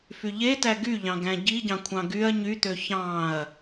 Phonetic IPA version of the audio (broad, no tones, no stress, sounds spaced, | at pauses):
f y ʎ e t æ ɡ y ʎ ɑ̃ ɡ æ̃ ɟ i ɟ ɑ̃ kʷʰ ɑ̃ ɡ y ɐ̯ ɲ y t̪ ø ç ɑ̃ ɐ̯